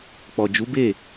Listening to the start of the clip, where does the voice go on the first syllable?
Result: low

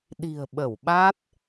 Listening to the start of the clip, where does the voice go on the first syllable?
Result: low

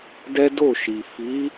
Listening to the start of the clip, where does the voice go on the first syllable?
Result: high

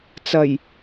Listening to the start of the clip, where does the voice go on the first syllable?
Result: low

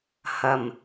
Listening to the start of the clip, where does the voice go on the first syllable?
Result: low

